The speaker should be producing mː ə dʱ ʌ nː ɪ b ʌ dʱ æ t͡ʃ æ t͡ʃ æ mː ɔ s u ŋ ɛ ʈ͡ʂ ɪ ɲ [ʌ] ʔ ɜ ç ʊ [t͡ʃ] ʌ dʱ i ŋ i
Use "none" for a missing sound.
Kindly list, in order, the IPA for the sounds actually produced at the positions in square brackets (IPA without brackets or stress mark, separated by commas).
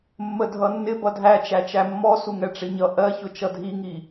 ʌ, t͡ʃ